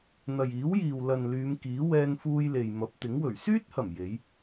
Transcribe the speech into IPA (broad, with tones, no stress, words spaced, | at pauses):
n̪ɐ˨jiː˨˥wjiː˨w lɐ˨n lyː˨˧mkiː˨˥ wɛː˥nfuː˥j le˨j mɐ˨˥p̚t̪ɪ˨˥ŋ wɵ˨˩ɥsyː˥t̚hɐ˨˩m je˨˥j